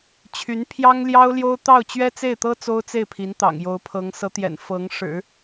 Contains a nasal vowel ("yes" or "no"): no